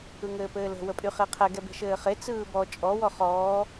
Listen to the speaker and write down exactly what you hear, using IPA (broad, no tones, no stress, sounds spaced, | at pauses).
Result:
ɯ ŋ ɘː p ɘː l ə̤ w ə pʼ y χ e qʰ ɛ ɡ ɛ b e̤ ʃ ɘː χ e t͡s ɯː b ɔ t͡ʃʼ ɔ w ɔ χ ɔː